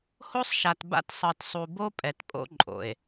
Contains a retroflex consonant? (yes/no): no